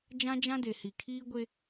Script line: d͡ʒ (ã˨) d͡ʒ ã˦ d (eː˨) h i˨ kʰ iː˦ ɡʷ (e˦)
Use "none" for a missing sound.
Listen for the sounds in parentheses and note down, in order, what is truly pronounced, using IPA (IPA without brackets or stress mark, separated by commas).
ã˦, e˨, e˦